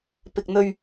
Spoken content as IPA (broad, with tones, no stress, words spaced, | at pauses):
pɪ˨k̚ n̪ɵ˨ɥ